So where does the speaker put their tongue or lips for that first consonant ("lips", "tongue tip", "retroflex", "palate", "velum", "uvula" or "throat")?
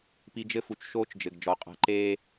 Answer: lips